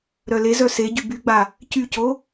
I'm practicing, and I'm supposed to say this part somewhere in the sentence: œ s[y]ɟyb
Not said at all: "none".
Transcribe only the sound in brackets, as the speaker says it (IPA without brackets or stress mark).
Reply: e